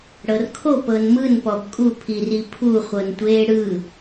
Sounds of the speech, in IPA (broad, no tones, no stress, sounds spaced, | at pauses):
ɽ ɤ r kʰ o p ɤ n m ɯ n p ɔ b kʼ u pʰ i r i pʰ u χʷ ɤ n tʷ eː ɽ ɯ